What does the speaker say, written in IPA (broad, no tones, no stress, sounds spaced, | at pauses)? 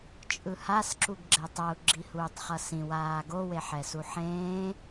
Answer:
t͡ʃʼ ɯ h a s ǁ u ɡ ɡ͡ǁ ɛ tˤ ʌ u̯ ɡ͡ǁ i h uː tˤ χ ʌ s ĩ w aː ɡ o w e ħ ɛ s u ħ ẽː